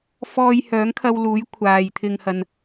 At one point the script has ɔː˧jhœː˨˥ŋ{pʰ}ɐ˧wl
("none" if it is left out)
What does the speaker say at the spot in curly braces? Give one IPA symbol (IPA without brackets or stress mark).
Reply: kʰ